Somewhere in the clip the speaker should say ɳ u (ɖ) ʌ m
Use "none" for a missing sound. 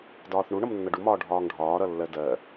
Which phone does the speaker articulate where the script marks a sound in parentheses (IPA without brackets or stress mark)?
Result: ɳ